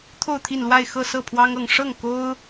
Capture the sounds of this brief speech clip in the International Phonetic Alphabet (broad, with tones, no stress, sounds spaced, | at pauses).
t̪ʰ o˥˧ ʊ̯ t̪ʰ i˥˧ n l w a˥˧ ɪ̯ x ɤ˥˧ s ɤ˥˩ pʰ w ɑ˥ ŋ ɤ˥˧ ŋ ʂ ɤ˥˩ ŋ k o˥ ʊ̯